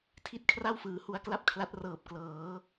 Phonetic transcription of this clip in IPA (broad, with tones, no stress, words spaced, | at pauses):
tʰi˥˩t̚kʰra˥˩wfɯː˩˦ hu˦˥a̯kla˥˩p̚kʰla˦˥t̚rɤː˨˩p̚ klɤː˩˦